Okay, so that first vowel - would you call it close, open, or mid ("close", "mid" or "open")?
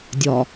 open